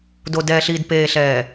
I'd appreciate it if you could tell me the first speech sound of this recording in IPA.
d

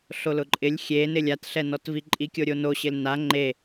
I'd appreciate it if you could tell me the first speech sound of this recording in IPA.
ɬ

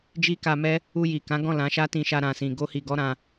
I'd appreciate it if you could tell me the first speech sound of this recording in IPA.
d͡ʒ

